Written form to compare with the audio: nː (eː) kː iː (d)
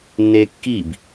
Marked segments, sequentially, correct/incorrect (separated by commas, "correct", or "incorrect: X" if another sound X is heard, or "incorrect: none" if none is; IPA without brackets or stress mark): correct, incorrect: b